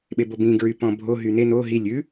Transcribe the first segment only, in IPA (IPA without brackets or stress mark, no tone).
ɓ